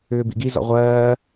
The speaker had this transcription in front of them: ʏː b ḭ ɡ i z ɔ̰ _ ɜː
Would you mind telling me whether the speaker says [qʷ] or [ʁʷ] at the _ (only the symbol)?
ʁʷ